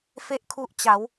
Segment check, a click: absent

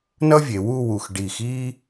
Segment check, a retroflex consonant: present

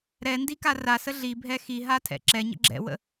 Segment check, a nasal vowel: absent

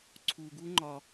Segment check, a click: present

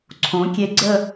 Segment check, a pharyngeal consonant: absent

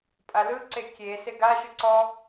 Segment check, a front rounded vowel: absent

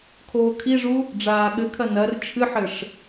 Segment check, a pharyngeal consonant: present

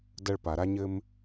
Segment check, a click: absent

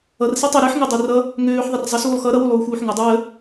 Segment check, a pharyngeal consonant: present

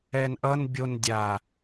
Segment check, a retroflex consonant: absent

